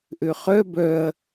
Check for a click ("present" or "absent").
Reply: absent